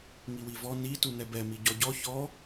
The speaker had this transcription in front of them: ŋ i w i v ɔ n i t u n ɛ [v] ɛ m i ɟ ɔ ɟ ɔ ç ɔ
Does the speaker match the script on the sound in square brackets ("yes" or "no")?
no